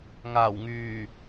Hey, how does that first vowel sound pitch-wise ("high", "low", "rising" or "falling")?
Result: low